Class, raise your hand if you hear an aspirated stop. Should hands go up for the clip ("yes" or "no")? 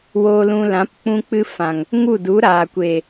no